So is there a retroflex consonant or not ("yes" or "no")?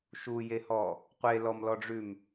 yes